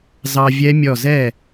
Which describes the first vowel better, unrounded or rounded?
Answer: unrounded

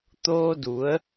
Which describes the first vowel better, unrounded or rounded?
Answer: rounded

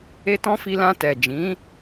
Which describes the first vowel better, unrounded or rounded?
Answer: unrounded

